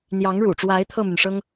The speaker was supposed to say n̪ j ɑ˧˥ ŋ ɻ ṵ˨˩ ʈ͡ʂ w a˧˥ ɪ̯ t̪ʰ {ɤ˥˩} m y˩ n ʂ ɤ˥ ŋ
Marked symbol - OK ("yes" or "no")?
yes